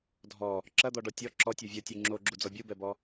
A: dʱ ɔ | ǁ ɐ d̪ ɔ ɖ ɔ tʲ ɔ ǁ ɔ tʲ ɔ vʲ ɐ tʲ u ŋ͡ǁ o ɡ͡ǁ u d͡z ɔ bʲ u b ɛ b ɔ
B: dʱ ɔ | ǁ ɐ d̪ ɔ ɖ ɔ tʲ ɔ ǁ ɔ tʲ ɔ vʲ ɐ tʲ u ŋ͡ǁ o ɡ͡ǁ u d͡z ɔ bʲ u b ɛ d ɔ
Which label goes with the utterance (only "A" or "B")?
A